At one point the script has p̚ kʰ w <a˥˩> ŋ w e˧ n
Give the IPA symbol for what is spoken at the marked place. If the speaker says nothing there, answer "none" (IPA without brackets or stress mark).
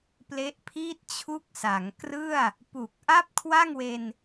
a˥˩